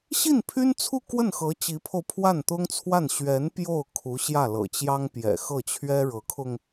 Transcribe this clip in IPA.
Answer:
ɕi˥˩npʰy˥nt͡sʰu˥˧ kwə˥˩nxɤ˧˥ t͡ɕi˧˥pʰo˧ʊ̯ pʰwa˥˩nt̪ʊ˥ŋt͡sʰwa˥˩n ɕɥɛ˧˥n pjo˥˩ʊ̯kʰu˧˥ ɕjä˥˩lɤ̰˨˩t͡ɕjɑ˥ŋ pjɛ̰˨˩xɤ˥˩t͡ɕʰɥɛ˥ ɻɤ˧˥kʰʊ˧ŋ

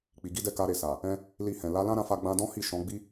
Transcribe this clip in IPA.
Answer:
k͡pi˨ɡi˨˦dɛ˦˨ ka˧ɾe˨ sa˨ | ɛ̃˧ | li˧hɛ̃˨ la˨˦lã˦ɾã˧fa˧ ɡ͡bã˦ dɔ̃˦hi˦˨ ʃɔ̃˨˦ ɡ͡bi˦

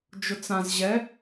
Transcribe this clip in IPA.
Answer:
d͡ʒʊt͡sãz ʑɛ

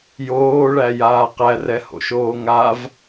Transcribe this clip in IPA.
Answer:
joːɭæjaː qærɛho̰ʃoː ŋav

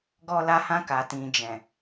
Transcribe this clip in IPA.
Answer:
ɡɔ˧la˧hã˧ ka˨tĩ˨ d͡ʒɛ̃˨

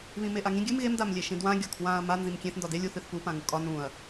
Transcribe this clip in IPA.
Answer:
βĩmeʔaŋĩ ɡʲɨm ɣem damlʲeʃĩdwã ɡʲɒkʰwãɐ̯ ma nzĩmkʲẽθ ndɒde lʲuθ ɨθpu pãŋukʼɒ nũɐ̯

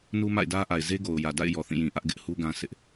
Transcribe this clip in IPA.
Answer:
nu˦ma̰˦˨ɪ̯dä˦ʔa˨ɪ̯ ze˦ɡo˨ʊ̯jä˨da̰˦˨ɪ̯ jɔ˨θĩ˦˨jĩ˨ʔä˦ʔ ɡɪ˦ʔhu˦ɡã˦ sɪ˦ʔ

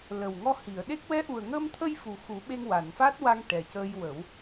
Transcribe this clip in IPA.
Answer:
lə˨˩wŋɔ˧hi˨˩˨ə̯ɗe˦˥k̚ wɛ˧˥ʔu˨˩ə̯ŋəː˧mt̪ʰə˧j fu˨˩xu˨˩˦ ɓe˧ŋwa˨˩˨nfa˦˥t̚wa˧ŋ ʈɛ˨˩cəː˧jwə˨˩˦w

